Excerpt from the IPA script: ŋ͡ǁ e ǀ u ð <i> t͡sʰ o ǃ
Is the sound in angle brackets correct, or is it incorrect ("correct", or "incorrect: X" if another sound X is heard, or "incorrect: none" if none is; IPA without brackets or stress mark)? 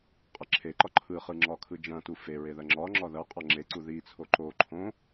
correct